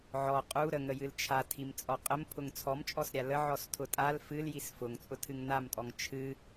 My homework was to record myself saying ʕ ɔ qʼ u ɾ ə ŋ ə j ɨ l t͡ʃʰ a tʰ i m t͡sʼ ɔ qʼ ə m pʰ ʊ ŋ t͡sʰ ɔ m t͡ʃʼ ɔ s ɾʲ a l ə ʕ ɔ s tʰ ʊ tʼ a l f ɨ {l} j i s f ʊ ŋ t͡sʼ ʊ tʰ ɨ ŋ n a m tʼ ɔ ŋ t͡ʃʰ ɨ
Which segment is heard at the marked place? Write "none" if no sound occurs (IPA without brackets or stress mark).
l